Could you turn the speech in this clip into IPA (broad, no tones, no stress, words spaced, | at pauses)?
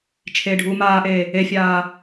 t͡ʃʰeːɖʱuːmaːʔeː | efʲaː